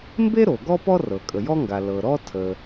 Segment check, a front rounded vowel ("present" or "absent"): absent